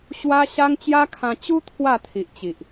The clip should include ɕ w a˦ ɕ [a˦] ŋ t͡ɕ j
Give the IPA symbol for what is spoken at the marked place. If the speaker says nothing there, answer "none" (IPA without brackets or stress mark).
a˦